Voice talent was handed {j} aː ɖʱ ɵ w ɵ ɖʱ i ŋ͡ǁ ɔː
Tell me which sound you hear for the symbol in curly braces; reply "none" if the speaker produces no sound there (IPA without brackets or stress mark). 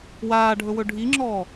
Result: w